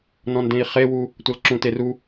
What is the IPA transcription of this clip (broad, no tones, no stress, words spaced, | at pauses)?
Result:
nɔ̃ndẽi̯χewu | tʷʌlǁũteru